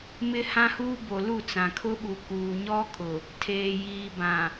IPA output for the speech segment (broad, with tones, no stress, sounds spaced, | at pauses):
m ɪ˦ h ã˦ h uː˦ b o˨ l u˦˨ t͡s ã˨ kʰ ʊ˦ ɓ u˨ k uː˨ ɲ ɔ˦ kʼ ʊ˨ | tʰ eː˨ j iː˨ b ã˨